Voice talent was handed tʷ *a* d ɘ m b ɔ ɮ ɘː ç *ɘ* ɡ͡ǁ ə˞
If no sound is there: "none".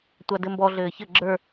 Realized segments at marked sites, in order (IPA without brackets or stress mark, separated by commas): a, ɘ